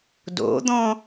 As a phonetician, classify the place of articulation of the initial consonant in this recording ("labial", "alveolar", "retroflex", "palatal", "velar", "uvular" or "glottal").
alveolar